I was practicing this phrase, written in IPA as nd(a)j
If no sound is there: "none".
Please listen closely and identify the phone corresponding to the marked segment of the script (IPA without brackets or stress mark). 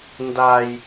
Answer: a